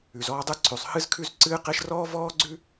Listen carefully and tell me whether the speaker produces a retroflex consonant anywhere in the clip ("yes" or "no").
no